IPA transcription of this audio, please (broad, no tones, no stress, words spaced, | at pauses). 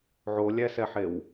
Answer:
ʕolʲæsɛħew